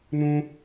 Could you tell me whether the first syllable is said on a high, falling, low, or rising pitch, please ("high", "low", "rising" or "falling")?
high